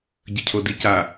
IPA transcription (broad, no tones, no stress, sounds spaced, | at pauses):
ɟ ə cʰ o d i c a